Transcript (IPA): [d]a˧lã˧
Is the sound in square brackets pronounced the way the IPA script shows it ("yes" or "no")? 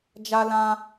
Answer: no